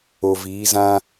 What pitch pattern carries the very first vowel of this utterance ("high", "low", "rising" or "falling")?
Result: low